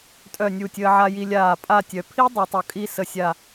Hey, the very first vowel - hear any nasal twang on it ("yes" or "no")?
no